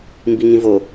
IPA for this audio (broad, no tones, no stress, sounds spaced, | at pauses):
m b i ŋ ĩ v o